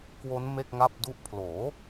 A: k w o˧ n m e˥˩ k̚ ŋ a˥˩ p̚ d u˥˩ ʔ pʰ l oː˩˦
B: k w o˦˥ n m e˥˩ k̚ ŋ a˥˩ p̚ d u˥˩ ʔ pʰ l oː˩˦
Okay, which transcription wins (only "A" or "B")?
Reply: B